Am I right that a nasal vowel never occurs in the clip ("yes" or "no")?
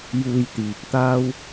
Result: yes